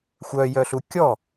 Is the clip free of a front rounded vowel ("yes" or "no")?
no